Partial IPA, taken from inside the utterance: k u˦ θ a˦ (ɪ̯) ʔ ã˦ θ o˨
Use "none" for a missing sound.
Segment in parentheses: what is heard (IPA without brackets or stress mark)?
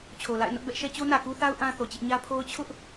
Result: ʊ̯